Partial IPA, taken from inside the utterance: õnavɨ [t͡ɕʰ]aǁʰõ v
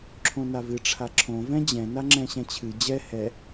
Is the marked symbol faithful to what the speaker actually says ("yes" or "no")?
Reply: no